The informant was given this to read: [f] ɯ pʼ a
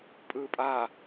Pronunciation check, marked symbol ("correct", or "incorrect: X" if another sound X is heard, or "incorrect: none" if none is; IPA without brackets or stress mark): incorrect: pʼ